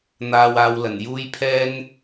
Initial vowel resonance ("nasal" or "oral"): oral